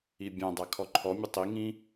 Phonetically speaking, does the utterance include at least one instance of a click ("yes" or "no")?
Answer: yes